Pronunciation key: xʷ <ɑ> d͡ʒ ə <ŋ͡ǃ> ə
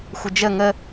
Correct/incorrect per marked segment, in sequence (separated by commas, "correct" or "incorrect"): incorrect, incorrect